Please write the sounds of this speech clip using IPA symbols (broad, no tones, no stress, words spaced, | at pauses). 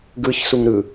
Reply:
ɡɯçsuŋ ɾɯ